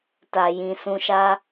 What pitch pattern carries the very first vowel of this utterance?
low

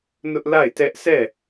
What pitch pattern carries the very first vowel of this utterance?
high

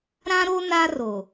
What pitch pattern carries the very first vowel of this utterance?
high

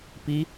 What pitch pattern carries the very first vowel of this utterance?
rising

